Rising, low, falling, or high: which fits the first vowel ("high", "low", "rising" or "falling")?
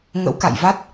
rising